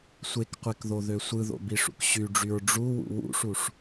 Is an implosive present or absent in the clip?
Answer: absent